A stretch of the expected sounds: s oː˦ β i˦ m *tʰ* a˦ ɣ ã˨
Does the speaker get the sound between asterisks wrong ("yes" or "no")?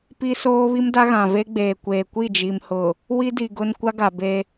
yes